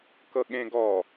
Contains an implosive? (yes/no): yes